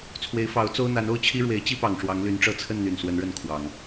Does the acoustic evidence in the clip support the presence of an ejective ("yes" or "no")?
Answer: no